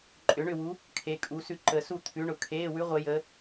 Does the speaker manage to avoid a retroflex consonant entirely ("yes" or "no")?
no